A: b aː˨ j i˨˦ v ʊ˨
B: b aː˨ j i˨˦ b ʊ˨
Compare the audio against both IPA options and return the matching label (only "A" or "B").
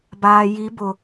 B